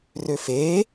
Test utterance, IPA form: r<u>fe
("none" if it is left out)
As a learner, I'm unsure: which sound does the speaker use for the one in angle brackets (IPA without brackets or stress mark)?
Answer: ø